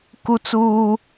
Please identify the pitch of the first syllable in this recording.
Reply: high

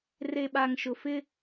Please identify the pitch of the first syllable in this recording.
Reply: low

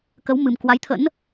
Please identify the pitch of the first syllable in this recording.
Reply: rising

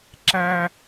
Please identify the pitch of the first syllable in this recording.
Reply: high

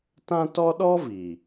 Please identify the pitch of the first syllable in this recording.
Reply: high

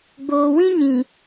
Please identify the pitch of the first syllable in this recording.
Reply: low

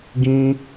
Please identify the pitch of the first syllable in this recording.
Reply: high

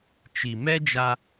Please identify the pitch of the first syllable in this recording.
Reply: low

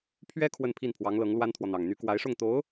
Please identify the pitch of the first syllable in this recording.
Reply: high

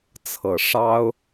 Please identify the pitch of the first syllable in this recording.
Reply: low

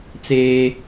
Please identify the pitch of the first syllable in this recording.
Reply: high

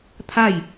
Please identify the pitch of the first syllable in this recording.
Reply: falling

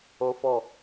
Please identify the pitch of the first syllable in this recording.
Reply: high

